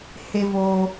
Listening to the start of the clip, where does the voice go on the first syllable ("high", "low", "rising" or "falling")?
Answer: high